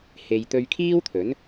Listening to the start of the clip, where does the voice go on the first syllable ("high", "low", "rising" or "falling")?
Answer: low